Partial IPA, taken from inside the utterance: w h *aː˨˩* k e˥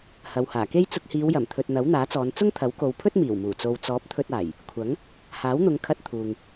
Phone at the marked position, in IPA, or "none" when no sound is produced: aː˨˩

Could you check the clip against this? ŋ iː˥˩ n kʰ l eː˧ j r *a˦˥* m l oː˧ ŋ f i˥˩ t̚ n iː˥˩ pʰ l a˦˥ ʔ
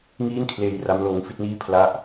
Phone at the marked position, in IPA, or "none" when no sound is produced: a˦˥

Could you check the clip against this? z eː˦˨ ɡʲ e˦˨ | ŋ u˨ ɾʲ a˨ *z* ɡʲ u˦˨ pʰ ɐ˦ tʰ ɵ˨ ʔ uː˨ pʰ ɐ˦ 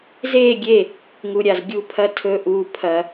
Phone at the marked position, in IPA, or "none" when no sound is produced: z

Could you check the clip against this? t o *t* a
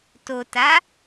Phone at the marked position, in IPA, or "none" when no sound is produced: t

